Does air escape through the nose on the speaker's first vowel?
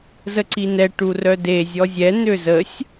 no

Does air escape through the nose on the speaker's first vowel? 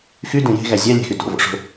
no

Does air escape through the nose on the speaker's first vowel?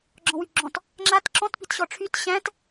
yes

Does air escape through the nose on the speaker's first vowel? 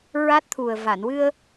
no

